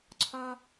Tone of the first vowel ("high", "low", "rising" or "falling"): high